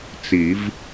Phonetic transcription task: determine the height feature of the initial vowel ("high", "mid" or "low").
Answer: high